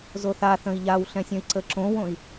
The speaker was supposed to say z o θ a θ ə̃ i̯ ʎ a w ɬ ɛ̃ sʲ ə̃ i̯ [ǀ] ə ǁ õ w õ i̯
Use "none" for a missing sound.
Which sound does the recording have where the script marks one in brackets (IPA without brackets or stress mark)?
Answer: ǀ